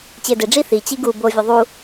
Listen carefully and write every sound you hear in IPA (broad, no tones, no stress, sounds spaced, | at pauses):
t͡ɕ ɪː d ɪ ɖ͡ʐ i θ i t͡ɕ i ɡ u b o vʲ ʊ ðˤ u